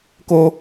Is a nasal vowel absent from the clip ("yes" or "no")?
yes